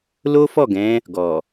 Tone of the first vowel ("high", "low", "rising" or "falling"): high